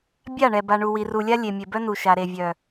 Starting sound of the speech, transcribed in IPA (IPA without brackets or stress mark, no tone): bʲ